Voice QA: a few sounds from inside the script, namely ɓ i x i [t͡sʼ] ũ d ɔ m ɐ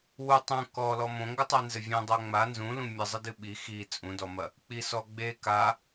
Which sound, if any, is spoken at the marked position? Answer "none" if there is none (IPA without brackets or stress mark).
t͡sʼ